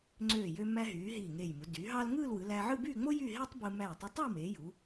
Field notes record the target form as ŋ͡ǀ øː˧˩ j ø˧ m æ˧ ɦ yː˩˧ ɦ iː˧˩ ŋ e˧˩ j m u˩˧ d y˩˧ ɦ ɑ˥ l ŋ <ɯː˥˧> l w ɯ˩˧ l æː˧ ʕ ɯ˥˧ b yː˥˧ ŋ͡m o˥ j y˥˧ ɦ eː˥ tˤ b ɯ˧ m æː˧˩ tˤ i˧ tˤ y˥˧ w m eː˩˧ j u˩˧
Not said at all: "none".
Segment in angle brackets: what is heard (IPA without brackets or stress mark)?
ɯː˥˧